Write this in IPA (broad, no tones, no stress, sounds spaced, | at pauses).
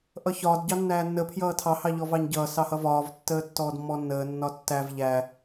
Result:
ʔ ʌ ç ɒː d ɟ ɑ nː æː nː ə pʰ j ʌː tʰ ɑ h ɑ ʎ ɔ v ɑ ɲ ɟ ʌː s ɑ h ʌ v ɒː v tː əː tː ɔː d mː ɔ nː əː nː ɒ tː æ v ʎ æ